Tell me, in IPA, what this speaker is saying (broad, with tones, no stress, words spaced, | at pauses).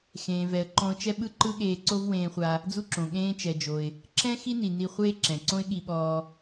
xẽː˩vɛ˩ə̯ ǃɔ̃˧ʊ̯t͡ʃɛ˥ ɓɯ˥ǃɯ˥ɠeː˧ ǀo˥vwẽː˧χʷa˧ | d͡zu˥ǁõ˩ ɠẽː˧t͡ʃɛ˩d͡ʒo˩ɪ̯ | ǁɛ̃˥ xi˥ni˩ ni˧χʷeː˥ǁɛ̃˩ ǀõ˥ɪ̯ɠi˧ɓɔː˧